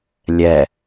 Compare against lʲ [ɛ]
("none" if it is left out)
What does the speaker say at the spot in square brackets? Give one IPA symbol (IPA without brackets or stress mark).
ɛ